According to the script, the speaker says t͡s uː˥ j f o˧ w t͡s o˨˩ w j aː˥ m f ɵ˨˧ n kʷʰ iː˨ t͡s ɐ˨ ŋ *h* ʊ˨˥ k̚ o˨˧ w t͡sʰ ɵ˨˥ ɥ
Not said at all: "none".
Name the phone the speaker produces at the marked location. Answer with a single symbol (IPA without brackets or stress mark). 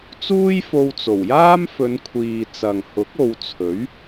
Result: h